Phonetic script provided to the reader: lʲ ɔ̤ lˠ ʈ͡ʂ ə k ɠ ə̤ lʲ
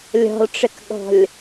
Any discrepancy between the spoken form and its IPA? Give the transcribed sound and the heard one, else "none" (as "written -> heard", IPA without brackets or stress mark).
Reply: ə̤ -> ɔ̤